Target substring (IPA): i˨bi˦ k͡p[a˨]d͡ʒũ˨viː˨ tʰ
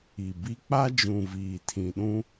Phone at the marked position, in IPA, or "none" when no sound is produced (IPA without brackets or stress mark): a˦